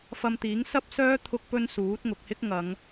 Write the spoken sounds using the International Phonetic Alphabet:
f ɐ˧ m t̪ iː˨˥ ŋ s ɐ˥ p̚ s œː˥ t̪ʰ ʊ˥ k̚ p ɵ˥ n s uː˨˥ t̚ ŋ ʊ˨ k̚ h ɪ˥ k̚ ŋ ɐ˨˧ ŋ

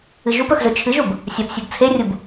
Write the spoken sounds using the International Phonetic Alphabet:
ɨ ʒ u p ɵ x z ɵ t͡ʃʰ ɨ ʒ u b | sʲ a p sʲ u ɡ t͡sʰ e rʲ u b

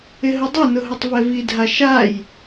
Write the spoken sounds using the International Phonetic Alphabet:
ɪ ɦ ʊ dˤ ɛ n ʊ ɦ ʊ tˤ v ɛ v i dʱ a ʃ a j

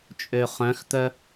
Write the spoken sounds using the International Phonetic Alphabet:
t͡ʃʼ ø χ œ̃ x t̪ œ

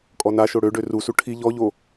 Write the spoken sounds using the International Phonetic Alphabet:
kʼ ɔ n a ʃ o ɽ ø ɖ ø r u s u ʈʰ i ʎ ɔ ʎ o

